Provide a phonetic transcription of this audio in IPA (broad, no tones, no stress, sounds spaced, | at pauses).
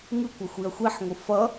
ŋ ɯ kʷ ʌ xʷ i ɐ̯ xʷ i ħ ŋʷ ɯ f ʌ